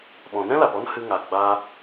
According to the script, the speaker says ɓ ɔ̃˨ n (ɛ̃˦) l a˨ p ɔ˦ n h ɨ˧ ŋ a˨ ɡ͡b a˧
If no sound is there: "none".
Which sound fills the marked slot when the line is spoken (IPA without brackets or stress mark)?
ɛ̃˦